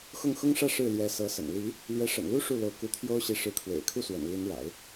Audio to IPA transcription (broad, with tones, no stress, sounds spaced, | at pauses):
x ʊ˥˩ ŋ x ʊ˥ ŋ ʂ ä˥˧ ʂ ɻ̩˥˩ l j ɛ˧˥ s ɤ˧˥ s ə̰˨˩ n l i˧˥ | l ɥ ɛ˧˥ ʂ ə̰˨˩ n l u˥ ʂ u˥˩ l o˧˥ ʊ̯ k u˧˥ t̪ʰ j o˥ ʊ̯ ɕ i˧˥ ʂ ɻ̩˧˥ kʰ w ḛ˨˩ ɪ̯ kʰ u˥˩ s w ə̰˨˩ n l i˧˥ n ɻ a̰˨˩˦ ɪ̯